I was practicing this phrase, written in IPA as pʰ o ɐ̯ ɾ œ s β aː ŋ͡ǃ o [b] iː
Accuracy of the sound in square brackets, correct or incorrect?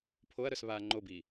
correct